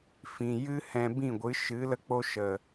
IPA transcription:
fĩ˨ jɨ˦hɛ̃˧ bĩ˦˨ɡʷɨ˨˦ʃɨ˨˦ lə˧k͡po˧ ʃə˨

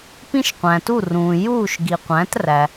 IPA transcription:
pĩ˥ʃqʷæ̃˩tu˥˩rũː˩ juː˥˩ʃɡi˩qʷæ̃˩˥træ˩

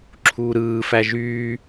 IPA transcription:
ǁʰuːɾɯː fæʒyː

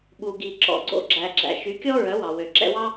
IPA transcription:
ɓu˨ ɡi˨ǁɔ̰˨ɡ͡ǀo̰˧ ɡ͡ǁæ˨ɡ͡ǁæ̰˨ʃy˨˦ kʲɔ˦ɹœ˨˦wɑ˨ wø˨ǁɛ̰˧wɑ˦

